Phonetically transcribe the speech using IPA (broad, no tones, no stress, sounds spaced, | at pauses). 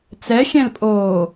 t͡s ɛ xʲ ɛ̃ l pʼ oː